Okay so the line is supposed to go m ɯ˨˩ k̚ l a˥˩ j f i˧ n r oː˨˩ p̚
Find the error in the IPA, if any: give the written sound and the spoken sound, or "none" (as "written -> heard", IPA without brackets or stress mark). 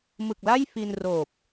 none